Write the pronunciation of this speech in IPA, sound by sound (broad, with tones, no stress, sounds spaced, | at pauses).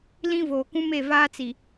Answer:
l ĩ˦ v oː˨ k ũ˦ m e˦˨ v aː˦ t͡s i˨